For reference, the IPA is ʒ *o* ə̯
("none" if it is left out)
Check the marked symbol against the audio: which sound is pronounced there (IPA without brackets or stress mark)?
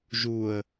u